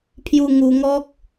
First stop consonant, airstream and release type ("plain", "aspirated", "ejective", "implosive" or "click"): aspirated